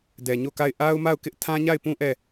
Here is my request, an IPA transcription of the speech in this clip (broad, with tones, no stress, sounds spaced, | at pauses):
d ɛ˨ ɲ o˦˨ k a˦˨ ɪ̯ ʔ a˦ ʊ̯ m a˦˨ ʊ̯ k ɪ˦ ʔ tʰ ã˦ ɲ a˦˨ ɪ̯ p ũ˦ ʔ ɛ˦˨